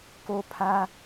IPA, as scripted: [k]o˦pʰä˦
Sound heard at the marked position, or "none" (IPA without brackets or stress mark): k